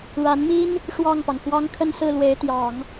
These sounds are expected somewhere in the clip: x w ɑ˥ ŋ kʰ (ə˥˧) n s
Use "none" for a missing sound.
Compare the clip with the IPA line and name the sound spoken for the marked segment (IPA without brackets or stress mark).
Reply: ə˥˧